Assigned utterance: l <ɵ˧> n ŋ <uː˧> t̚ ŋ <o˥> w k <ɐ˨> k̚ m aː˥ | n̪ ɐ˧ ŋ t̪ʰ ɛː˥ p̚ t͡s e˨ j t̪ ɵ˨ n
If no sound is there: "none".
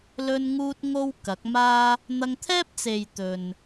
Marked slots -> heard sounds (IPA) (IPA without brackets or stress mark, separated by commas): ɵ˧, uː˧, o˥, ɐ˨˥